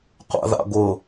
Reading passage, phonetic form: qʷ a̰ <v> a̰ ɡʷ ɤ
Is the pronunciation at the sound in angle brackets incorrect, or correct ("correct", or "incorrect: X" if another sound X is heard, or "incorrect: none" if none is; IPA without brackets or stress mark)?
incorrect: ð